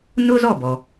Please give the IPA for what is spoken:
nʊ˥zɔ˥˩bɔ˩

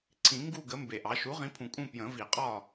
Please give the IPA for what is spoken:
ǀʰĩ˨˩˦ŋɡu˦˨ɡə˩˥ mbe˨˩ʔɑ˩˥ ʃu˩˥ʁĩ˩˥pʰũ˨˩ kʼũ˦˨ pjə̃˨˩˦vi˨˩˦qʼɒ˦˨

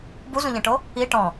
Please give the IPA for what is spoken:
buzũʎẽʈo | i ʈɔ̃

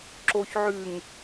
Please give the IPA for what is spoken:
ǁoçʕʉŋ

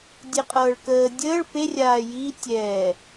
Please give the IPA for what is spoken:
dʲeqʼɤːɭkəː dʲəːɭ pe rʲaːjiː tʲɛː

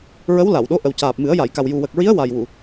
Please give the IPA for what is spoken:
ɹə˧˥wla˨˩˨wɗo˧˥ ʔə˨˩wcaː˨˩p̚mɨ˨˩˦ə̯ ja˨˩˨jka˨˩w ju˨˩wə˨˩k̚ɹi˧˥ə̯ wa˨˩jwu˨˩˨

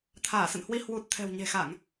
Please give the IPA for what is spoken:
t̪ʰaː˧˩sə̰˧˨nhwi˧ hwu˨˩t̚ t̪ʰɛ̤˨˩wɲe̤˨˩xa˧˩˨ŋ

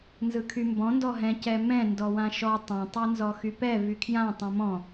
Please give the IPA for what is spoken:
nzɯkʰymbɔ̃ ndɔɦɛ̃ cɛmɛ̃ ndɔwãʃɔ tˤã tˤɛnzɔxypɛ vykʰjã tˤɛ̃mɔ̃

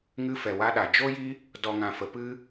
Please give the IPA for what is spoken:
ŋɨ˧fɛ˨wa˧ɗa˨ d͡ʒo˦ji˦ | dɔ˨ŋã˨fə˨ pɨ˦

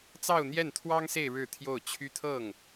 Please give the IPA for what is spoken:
t͡sɑ˥˧ʊ̯n̪jɛ˥˩nt̪ʰwɑ˥ŋse˥˧ɪ̯ ɻɻ̩˥˧t̪ʰjo˥˩ʊ̯t͡ɕʰy˥t̪ʰɤ˥˩ŋ

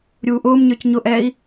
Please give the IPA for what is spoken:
ɾʲuːʔʊːmɲə˞c ɲʊʔɛːi̯

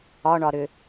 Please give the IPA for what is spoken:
ɒɳɒ ɾʏ

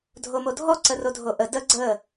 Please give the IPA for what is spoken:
dʱomodʱɔ ǀərodʱoʔə də ɡ͡ǀə

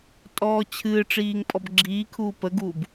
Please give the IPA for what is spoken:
tʼɔːt͡ɕʰɨːʈ͡ʂiːŋ pʼɔbɡ͡ǁiː kʰuːpəɡuːb

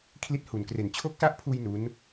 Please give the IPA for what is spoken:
kʰli˦˥t̚hu˨˩nkre˨˩n t͡ɕʰo˦˥k̚sa˦˥ʔpʰuː˧j nu˦˥n

